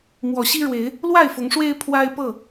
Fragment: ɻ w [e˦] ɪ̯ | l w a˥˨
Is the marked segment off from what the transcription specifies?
yes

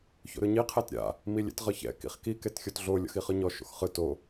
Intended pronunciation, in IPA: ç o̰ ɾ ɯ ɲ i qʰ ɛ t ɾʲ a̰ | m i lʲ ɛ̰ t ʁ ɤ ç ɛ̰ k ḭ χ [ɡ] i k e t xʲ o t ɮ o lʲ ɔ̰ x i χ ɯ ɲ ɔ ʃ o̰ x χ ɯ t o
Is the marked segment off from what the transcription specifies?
yes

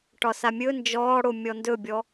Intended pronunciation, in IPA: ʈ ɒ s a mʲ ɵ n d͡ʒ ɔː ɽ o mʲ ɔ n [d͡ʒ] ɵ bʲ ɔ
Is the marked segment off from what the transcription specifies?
yes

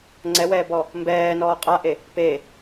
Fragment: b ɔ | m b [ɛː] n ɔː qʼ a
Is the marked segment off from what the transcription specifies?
no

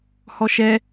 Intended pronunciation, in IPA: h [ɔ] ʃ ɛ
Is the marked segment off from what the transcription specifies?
no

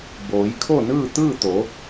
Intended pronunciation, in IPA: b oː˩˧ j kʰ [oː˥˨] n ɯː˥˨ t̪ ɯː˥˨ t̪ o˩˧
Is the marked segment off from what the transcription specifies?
yes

